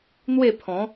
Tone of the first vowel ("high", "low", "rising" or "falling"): falling